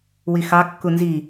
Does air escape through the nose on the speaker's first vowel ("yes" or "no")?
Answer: no